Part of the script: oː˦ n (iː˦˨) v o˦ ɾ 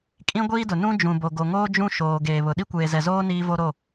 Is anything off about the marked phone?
yes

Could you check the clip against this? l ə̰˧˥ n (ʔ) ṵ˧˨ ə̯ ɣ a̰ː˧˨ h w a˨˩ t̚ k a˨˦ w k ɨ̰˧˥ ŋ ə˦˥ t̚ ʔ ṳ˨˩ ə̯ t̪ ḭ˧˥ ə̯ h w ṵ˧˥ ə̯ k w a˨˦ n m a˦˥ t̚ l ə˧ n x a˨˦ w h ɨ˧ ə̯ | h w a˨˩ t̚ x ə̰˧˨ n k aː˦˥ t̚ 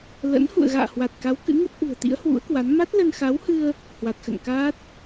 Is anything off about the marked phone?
yes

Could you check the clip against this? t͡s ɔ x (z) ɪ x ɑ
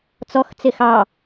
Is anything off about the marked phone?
yes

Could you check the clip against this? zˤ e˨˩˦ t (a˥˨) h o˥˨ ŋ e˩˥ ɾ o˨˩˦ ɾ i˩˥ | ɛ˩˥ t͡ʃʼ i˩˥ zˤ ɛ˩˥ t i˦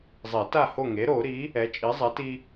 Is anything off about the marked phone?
no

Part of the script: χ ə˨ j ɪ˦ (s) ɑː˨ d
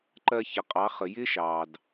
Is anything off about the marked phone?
yes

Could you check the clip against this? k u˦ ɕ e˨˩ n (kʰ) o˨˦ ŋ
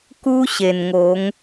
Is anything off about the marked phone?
yes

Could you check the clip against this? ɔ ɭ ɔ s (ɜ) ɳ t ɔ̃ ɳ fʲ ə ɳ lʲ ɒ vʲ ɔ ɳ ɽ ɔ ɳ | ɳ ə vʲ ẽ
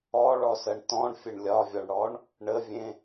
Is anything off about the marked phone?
no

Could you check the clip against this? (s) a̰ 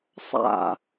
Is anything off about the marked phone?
yes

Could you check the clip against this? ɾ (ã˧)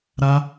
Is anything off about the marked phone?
yes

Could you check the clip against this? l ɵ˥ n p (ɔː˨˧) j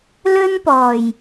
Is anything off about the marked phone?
yes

